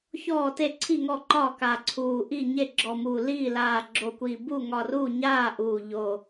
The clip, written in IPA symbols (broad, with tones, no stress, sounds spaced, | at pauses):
ç ɔː˥˩ t e˥˩ ǀʰ i˥˩ ŋ ɔ˥˩ ǃ ɒ˥˩ k aː˧˩ ǀʰ uː˧˩ ʔ i˥˩ ɲ e˥˩ ɡ͡ǁ ɔ˧˩ m u˧˩ l iː˥˩ l aː˧˩ ɡ͡ǁ o˧˩ kʷ iː˧˩ b u˥˩ ŋ ɒ˧˩ r uː˥˩ ɲ aː˥˩ ʔ uː˧˩ ʎ o˧˩